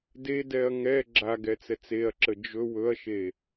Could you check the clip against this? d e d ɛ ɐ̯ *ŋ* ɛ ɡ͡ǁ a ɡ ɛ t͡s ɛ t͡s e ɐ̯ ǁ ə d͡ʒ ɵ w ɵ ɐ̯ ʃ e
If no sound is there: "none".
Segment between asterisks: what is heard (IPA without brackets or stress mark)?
ŋ